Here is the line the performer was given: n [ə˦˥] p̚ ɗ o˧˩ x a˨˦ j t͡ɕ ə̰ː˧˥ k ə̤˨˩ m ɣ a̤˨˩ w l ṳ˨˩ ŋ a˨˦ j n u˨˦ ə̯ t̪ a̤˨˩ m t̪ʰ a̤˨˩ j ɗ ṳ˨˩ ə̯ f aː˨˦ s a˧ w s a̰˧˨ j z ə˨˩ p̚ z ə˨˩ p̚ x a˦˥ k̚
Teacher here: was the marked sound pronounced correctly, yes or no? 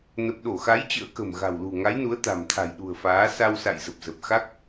no